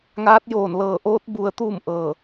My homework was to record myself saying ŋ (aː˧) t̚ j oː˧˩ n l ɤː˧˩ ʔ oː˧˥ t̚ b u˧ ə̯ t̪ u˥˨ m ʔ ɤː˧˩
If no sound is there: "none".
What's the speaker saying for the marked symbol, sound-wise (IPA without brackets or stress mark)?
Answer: aː˧˥